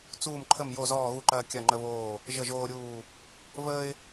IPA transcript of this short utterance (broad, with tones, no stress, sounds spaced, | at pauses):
t͡s uː˦˨ m ǃʰ ə˦˨ m j o˦˨ z ɔː˦˨ ɣ u˦˨ ǃ ɐː˦ kʲ ɐ˦˨ ŋ͡ǃ ə˦ β oː˦˨ | ʒ ə˦˨ ʒ oː˦ ɾʲ uː˦˨ | v əː˦ ɪ̯